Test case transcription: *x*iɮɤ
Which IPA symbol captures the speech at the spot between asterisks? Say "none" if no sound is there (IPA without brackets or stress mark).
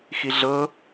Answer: x